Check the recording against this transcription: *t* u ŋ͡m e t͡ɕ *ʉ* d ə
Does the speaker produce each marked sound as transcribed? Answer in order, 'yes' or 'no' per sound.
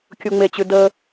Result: no, yes

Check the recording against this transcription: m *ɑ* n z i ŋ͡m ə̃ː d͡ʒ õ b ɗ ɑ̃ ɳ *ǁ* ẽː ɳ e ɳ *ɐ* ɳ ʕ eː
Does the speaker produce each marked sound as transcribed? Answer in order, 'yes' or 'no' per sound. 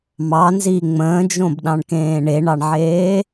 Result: yes, no, no

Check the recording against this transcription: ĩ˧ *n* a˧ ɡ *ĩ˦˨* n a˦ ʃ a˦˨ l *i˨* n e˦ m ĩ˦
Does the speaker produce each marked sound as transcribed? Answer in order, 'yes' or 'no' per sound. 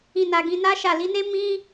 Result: yes, no, no

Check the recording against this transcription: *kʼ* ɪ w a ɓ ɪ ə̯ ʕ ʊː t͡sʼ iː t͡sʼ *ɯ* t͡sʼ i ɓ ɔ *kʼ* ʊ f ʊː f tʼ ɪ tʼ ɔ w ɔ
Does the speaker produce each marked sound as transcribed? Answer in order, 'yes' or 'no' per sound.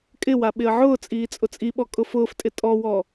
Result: yes, no, yes

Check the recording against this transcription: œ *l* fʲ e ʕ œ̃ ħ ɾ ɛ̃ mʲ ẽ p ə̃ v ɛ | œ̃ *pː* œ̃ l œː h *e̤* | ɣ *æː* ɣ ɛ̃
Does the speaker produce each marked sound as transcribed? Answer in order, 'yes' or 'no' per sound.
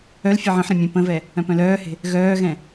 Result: yes, no, yes, no

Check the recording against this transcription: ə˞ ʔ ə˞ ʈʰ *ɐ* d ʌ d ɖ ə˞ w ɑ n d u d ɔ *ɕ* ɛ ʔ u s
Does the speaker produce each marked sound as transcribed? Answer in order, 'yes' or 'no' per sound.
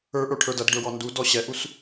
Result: no, yes

